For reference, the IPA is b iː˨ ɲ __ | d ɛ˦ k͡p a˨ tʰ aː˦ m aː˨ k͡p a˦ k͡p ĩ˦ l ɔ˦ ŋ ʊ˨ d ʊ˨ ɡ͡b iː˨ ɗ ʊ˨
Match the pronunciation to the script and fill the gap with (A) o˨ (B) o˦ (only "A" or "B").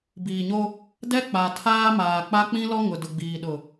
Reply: B